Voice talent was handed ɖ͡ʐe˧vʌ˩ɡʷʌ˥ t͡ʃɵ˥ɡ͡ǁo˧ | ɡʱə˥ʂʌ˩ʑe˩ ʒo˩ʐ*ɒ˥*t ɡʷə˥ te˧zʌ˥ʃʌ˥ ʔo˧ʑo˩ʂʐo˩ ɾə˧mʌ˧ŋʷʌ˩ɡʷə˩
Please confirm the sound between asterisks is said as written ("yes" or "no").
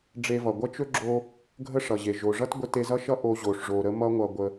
no